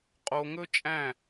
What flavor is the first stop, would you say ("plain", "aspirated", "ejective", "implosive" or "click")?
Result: ejective